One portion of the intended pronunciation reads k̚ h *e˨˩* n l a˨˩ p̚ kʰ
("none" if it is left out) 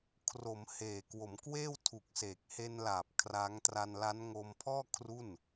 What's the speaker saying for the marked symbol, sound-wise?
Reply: e˧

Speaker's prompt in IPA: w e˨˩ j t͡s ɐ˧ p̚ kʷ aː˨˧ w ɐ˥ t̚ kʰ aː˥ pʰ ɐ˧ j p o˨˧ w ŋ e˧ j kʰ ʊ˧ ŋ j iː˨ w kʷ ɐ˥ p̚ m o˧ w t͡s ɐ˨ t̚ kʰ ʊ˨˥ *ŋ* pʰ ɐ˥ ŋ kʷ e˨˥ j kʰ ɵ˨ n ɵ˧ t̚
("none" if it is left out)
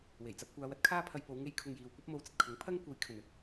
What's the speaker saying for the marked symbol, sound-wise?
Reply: ŋ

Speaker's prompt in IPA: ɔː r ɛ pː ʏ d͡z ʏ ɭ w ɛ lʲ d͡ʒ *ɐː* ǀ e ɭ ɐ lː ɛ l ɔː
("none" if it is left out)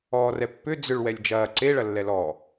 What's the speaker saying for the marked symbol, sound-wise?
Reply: ɐː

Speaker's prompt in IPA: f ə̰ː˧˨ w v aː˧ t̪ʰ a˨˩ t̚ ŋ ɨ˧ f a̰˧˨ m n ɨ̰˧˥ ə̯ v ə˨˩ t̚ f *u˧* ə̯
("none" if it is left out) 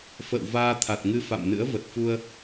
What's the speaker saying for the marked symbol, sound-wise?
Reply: u˧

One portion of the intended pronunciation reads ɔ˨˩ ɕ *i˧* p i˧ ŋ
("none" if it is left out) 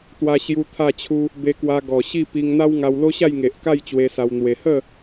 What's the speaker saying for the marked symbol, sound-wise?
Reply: i˥˧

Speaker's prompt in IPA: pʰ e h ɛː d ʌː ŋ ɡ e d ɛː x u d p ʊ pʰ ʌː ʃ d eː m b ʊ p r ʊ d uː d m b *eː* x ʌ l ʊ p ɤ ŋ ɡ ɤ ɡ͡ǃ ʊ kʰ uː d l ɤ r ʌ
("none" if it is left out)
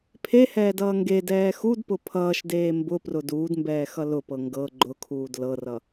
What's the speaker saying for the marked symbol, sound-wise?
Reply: ɛː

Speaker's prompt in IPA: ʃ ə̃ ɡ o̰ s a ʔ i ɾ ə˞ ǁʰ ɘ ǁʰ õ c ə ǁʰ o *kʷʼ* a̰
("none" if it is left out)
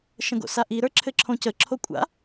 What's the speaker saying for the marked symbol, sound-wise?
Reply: kʷʼ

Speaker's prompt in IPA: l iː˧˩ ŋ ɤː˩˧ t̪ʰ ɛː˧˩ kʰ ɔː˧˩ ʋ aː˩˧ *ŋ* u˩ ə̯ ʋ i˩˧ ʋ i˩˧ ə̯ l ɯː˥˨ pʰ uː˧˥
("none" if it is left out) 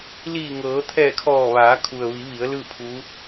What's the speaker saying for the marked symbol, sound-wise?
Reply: kʰ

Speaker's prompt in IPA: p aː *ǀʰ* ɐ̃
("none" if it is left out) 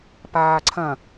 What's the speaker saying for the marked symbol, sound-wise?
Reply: ǀʰ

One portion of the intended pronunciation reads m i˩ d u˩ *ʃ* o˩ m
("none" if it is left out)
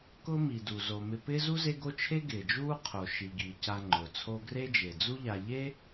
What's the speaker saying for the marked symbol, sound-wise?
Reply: z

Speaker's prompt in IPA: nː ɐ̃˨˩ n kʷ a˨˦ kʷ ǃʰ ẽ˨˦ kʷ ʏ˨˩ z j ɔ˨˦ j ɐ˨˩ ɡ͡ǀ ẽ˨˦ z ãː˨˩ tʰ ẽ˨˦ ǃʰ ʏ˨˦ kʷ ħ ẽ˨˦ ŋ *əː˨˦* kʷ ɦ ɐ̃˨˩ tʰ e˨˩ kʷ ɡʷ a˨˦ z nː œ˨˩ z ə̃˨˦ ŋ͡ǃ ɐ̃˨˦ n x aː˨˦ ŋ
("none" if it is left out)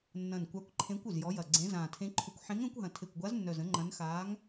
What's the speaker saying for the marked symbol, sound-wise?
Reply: ə̃ː˨˦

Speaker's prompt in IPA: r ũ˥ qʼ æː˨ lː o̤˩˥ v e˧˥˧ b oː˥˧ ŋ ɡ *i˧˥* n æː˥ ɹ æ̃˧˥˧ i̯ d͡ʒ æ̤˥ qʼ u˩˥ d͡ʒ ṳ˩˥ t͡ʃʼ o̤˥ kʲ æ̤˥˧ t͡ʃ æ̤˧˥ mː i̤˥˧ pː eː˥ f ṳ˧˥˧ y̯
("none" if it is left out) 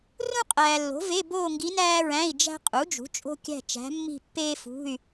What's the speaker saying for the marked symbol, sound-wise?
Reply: i˧˥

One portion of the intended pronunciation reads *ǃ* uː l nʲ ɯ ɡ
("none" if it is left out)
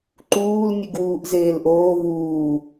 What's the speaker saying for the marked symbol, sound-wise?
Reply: ǃ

